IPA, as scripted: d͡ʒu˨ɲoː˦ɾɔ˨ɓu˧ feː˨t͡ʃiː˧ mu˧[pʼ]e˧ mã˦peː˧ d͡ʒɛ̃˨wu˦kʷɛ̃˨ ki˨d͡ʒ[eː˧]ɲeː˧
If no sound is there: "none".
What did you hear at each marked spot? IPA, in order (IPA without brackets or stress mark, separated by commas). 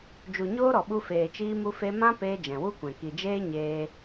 f, eː˦